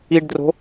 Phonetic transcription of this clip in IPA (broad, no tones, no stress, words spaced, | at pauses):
iɖdro̤